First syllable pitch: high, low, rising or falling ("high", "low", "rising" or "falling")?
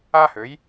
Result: high